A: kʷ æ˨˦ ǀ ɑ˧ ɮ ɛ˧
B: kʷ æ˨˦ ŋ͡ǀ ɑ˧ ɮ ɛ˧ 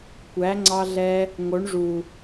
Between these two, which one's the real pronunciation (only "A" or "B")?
B